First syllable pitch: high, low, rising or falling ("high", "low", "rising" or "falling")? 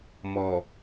low